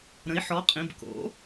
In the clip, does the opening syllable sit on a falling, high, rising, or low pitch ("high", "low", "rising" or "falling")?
rising